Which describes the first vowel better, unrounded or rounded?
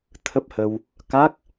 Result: unrounded